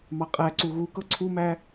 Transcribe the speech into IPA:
mɑqʼæǀu ɣukɤ ǀʰumæ

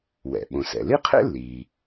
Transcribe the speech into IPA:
wɛ̰˩ ɓõ˩sɛ̰˩li˥qʰḛ˥ lːiː˩

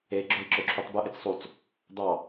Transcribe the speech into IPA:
e ɡ͡ǁøi̯ǁøǁʰutˤbɯ ʔet͡ssˤut͡s | d̪ɑ

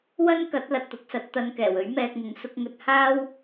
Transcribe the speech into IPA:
wɐ˥nkɐ˨˥t̚ lɐ˧t̚t̪ʊ˨˥k̚sɐ˨˥t̚ t̪ɐ˨n kɛː˨˩ wɵ˨˥ɥmɛː˧k̚ŋʊ˨˥ŋ sʊ˨˥k̚ŋɵ˧t̚ haː˥w

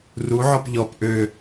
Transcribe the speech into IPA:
ruʕɔp ʎɔp ʔø

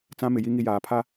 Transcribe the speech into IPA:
t͡sã˦mɪ˨ji˦ ŋi˦jaː˨ pʰa˦

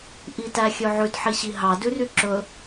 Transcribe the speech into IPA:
ʔitæxʲøʕʉd ħiɕiɦɑ dʉryǁɵ

